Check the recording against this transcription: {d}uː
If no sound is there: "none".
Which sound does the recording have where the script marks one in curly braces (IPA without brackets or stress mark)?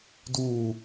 d